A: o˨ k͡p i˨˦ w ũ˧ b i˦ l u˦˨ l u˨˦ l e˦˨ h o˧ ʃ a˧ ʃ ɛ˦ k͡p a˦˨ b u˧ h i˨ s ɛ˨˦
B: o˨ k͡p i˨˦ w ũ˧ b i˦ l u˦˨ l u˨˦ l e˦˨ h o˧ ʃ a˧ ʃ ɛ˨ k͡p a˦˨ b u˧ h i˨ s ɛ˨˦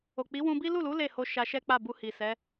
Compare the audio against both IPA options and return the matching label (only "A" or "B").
A